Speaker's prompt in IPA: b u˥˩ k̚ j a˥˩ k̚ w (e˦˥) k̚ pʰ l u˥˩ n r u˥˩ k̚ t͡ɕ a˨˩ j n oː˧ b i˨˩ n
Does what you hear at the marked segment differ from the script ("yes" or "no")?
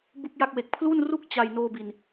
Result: yes